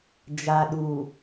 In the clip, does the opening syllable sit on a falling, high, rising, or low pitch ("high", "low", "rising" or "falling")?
low